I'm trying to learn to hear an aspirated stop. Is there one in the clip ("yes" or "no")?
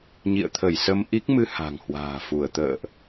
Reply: yes